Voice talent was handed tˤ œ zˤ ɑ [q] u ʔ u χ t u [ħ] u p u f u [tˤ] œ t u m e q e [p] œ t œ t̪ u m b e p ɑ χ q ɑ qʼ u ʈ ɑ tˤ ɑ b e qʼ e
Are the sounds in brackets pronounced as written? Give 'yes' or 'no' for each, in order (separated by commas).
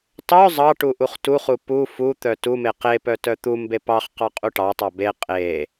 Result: no, no, no, yes